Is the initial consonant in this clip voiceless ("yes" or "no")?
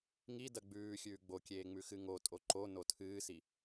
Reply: no